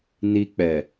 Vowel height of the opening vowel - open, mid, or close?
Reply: close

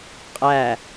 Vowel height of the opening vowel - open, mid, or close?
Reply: open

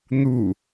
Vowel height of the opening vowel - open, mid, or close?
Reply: close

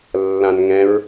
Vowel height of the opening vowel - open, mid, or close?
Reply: open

